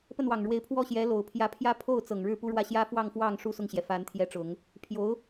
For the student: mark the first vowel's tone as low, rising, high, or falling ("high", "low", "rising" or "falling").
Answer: falling